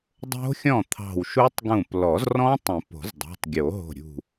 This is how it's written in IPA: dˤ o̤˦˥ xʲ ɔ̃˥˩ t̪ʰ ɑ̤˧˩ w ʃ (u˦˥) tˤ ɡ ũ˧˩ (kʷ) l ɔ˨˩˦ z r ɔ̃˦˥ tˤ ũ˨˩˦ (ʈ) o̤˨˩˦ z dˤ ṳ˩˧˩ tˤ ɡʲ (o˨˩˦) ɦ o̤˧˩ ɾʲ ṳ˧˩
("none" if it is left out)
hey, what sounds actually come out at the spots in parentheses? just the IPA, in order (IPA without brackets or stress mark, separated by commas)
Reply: u˦˥, p, p, o˨˩˦